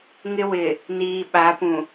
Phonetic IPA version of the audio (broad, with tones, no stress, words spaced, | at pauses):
ŋɪ˦wɪ˨ | niː˨ ɓa˨˦pũ˨